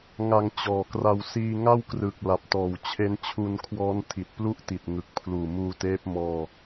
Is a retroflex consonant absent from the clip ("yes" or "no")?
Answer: yes